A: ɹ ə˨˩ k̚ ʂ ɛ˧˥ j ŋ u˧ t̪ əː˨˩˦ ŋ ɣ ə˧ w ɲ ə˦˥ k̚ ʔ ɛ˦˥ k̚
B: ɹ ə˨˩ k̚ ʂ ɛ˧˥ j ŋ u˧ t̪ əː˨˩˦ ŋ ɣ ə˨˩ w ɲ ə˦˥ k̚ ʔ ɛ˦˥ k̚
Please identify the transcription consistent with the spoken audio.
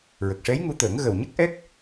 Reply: B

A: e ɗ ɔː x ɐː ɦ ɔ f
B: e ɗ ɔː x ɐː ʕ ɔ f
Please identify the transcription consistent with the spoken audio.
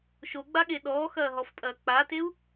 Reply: A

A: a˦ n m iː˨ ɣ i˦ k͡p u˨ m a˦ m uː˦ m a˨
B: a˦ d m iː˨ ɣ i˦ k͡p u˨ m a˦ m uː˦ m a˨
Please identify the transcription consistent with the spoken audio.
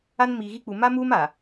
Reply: A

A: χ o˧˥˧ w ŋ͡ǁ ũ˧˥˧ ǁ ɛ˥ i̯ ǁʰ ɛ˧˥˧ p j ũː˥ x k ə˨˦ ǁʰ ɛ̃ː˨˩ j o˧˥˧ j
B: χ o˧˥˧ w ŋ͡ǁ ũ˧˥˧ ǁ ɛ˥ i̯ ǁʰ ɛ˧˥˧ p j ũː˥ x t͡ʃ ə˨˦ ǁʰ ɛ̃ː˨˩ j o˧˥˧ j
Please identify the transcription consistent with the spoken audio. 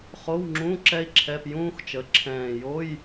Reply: B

